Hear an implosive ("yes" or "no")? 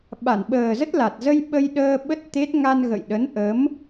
yes